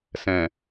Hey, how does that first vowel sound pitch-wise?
low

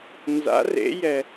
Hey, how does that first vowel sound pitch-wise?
rising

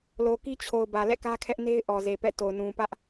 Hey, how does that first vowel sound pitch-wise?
low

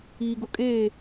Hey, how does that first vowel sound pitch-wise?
low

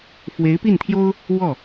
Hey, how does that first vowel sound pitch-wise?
rising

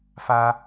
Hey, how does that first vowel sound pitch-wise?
high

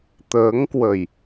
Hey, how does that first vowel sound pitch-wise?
rising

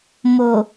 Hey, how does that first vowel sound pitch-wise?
low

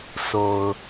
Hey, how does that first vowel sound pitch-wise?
low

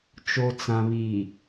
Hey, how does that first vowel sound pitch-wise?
low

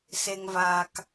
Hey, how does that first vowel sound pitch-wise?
low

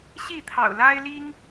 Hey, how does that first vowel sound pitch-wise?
falling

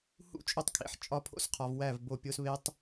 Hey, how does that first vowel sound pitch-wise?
falling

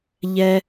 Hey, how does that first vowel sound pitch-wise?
high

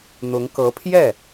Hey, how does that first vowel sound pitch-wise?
rising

